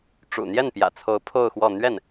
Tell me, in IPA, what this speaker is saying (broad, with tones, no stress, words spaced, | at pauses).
ʈ͡ʂṵ˨˩n̪jɛ˥˩npjä̰˨˩t͡sʰo˧˥ʊ̯ pʰo˥˧ʊ̯xwɔ˥˧ n̪ɥɛ˥˩n